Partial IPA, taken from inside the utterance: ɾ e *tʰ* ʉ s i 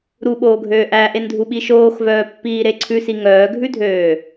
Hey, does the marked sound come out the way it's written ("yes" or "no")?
no